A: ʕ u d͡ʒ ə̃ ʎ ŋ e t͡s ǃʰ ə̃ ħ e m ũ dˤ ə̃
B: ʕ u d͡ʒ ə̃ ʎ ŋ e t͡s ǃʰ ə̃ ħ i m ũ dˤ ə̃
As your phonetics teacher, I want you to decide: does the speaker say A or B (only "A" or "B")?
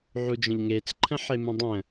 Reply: A